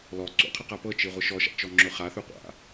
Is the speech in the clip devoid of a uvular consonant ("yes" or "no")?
no